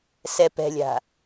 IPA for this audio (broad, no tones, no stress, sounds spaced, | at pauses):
s ɛ p ɛ̤ lʲ a̤